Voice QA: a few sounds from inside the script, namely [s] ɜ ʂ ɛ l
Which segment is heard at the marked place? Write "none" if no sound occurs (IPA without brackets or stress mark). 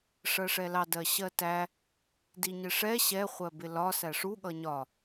ʂ